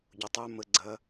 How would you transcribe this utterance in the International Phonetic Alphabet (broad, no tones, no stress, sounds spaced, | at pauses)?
ɟ ʊ tˤ ə˞ m ə ɡ͡ǀ ɐ